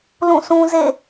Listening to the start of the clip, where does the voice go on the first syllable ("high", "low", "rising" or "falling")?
falling